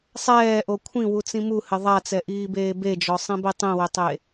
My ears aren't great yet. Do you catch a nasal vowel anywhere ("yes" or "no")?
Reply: yes